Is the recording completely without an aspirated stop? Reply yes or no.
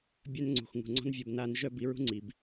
yes